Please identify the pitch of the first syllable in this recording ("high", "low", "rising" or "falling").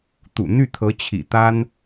low